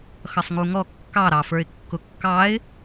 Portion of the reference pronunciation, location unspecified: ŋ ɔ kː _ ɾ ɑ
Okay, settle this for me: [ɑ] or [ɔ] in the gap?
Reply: ɑ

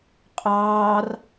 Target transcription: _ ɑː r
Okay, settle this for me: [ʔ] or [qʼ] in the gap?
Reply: qʼ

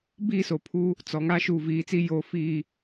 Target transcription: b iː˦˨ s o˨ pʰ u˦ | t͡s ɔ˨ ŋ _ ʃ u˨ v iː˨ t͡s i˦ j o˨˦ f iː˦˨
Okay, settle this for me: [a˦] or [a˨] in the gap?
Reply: a˦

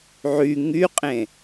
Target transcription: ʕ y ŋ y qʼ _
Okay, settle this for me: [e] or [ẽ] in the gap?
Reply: ẽ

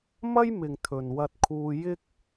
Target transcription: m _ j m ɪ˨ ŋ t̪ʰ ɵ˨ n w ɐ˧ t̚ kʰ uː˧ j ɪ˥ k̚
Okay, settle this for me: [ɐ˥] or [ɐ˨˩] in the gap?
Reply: ɐ˥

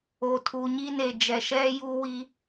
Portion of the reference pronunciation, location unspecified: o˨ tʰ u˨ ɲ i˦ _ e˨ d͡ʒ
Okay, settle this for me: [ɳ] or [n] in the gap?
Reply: n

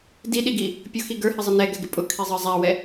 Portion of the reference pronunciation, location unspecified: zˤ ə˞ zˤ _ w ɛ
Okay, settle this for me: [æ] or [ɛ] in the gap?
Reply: æ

